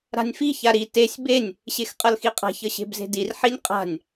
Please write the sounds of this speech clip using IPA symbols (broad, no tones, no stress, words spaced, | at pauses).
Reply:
ɾa̤nʲfi çaɾi tesʲ benʲ | ɕexqʼʌlxiqʼa̤ çʌɕe̤bze̤dir ħinʲqʼa̤nʲ